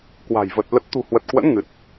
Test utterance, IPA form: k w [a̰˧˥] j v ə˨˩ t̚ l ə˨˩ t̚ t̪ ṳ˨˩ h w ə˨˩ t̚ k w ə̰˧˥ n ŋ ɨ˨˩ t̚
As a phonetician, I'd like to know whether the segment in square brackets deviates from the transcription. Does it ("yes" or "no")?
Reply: yes